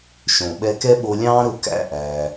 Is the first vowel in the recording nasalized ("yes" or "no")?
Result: yes